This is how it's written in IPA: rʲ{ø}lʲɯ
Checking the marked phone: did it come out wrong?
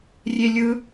yes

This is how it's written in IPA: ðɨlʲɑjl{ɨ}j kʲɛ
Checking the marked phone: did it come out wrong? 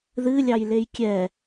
yes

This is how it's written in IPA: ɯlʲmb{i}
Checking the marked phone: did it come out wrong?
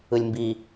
no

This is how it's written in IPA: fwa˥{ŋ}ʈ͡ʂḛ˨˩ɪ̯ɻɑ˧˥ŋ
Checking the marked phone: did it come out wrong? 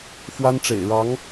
yes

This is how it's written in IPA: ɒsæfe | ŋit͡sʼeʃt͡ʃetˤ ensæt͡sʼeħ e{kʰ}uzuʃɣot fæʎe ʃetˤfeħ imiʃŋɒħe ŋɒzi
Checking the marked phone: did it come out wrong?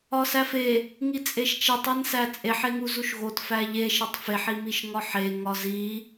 yes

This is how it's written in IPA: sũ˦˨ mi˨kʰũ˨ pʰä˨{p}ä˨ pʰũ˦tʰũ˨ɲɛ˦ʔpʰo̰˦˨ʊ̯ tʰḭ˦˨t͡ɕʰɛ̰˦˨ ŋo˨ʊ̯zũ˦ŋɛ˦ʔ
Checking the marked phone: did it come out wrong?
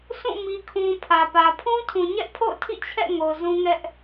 no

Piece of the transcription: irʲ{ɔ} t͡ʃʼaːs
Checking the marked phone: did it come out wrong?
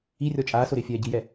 no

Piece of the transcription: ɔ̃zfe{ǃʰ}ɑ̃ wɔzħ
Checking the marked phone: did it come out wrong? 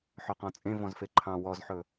no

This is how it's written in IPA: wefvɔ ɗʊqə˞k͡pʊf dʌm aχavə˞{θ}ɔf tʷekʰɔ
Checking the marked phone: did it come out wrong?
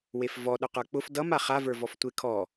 yes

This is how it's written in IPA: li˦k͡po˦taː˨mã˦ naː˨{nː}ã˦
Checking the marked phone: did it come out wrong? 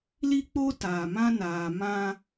yes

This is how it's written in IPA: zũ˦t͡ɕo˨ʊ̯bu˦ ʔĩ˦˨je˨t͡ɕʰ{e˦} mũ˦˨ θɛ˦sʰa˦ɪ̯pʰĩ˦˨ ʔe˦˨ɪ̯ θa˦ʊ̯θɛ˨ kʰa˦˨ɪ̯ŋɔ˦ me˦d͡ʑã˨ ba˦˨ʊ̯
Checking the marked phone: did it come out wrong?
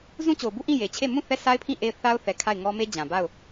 yes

